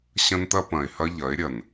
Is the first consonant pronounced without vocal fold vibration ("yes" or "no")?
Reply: yes